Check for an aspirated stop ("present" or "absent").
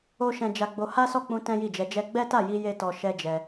absent